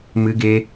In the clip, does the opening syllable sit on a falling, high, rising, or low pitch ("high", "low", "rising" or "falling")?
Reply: high